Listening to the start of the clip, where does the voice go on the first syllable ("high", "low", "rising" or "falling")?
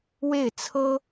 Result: falling